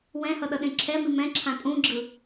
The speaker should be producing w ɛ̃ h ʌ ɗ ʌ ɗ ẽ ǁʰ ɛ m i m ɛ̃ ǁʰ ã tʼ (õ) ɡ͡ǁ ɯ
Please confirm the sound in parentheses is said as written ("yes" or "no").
no